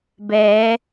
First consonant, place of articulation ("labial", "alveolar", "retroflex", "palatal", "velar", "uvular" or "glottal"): labial